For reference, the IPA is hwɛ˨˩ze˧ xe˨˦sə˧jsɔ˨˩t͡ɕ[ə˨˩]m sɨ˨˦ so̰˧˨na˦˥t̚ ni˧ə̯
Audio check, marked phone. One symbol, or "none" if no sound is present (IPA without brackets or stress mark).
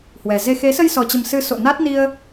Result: ə˨˩